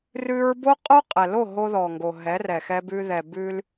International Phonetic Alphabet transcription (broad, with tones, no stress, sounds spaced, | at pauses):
r ʉ˦ ɹ b o˦ qʼ o˦ qʼ ɛ˨ l o˦˨ ɦ o˦ ð ɔ˨ ŋ ɡ o˨ ɦ ɛ˨˦ r ɛ˨ x ɛ˦ b ʉ˦ ð ɛ˨ b ʉ˦ l